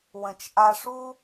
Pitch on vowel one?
low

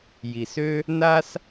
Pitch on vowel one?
low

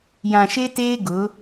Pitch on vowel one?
low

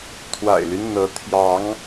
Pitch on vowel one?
low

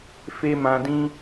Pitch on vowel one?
high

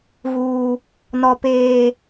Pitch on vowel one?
high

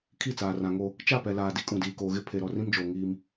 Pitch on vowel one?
falling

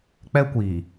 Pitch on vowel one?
high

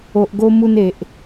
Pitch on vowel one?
low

